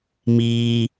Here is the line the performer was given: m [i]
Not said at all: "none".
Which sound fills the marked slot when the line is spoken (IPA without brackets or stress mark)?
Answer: i